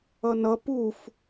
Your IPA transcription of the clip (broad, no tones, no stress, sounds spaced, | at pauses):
ʌ n ʌ p u f